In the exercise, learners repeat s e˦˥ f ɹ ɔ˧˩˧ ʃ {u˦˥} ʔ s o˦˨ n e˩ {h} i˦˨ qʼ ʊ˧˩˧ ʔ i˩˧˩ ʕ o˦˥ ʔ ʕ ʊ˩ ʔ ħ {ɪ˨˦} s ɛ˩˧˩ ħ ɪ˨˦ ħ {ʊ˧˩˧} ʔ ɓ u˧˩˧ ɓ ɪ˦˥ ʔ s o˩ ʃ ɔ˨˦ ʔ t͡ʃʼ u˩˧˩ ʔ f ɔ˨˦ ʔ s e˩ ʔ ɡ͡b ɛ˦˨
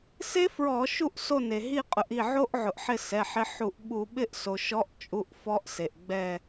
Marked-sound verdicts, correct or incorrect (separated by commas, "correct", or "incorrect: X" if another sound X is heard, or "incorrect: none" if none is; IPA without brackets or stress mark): incorrect: u˦˨, incorrect: ɦ, incorrect: ɪ˦˨, incorrect: u˧˩˧